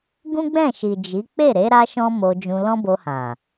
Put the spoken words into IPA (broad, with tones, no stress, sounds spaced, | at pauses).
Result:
ɡ ũ˦ ɡ͡b ɛ̃˦˨ ʃ i˨ d͡ʒ i˨˦ k͡p e˦˨ ɾ e˨˦ ɾ a˧ ʃ ɔ̃˦ m o˧ d͡ʒ ũ˧ l ɔ̃˦ b o˧ h ã˨